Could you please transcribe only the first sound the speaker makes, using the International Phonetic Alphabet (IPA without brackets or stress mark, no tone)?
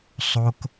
sˤ